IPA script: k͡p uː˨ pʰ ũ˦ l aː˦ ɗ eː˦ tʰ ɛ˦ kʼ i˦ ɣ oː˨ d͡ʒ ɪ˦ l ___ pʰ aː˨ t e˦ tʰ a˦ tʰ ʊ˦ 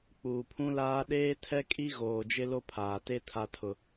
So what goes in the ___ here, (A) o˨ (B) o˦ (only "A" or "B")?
B